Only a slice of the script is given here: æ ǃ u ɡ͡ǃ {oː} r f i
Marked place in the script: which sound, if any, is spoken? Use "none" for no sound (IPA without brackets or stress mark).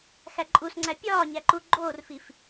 oː